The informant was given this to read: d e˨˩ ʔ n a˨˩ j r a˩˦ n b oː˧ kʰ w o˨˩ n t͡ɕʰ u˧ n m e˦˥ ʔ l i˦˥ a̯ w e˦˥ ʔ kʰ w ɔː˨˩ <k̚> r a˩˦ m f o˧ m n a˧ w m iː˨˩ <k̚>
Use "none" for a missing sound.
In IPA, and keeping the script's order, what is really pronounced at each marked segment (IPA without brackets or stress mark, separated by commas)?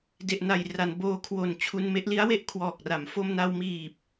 k̚, p̚